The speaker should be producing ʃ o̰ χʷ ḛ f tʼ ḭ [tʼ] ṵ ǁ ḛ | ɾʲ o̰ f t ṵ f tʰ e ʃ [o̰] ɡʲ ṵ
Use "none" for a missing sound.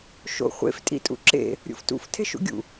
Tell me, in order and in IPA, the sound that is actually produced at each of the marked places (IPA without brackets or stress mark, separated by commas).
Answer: tʼ, ṵ